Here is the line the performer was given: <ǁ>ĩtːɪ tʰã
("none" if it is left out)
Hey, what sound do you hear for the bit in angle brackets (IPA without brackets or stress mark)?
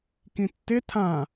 k